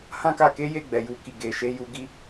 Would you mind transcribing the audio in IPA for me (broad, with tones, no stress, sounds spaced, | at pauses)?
h ã˦ k a˧ k e˦ j e˦˨ ɡ͡b ɛ˨ j u˨ k i˨ ɡ e˨ ʃ e˧ j u˧ ɡ i˧